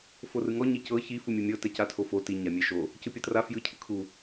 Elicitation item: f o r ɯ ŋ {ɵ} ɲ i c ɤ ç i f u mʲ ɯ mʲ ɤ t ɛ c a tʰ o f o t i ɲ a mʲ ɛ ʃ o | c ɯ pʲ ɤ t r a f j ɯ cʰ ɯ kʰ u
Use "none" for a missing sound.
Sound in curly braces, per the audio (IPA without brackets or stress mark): ɔ